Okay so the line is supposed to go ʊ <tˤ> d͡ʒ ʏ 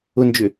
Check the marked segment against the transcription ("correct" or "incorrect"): incorrect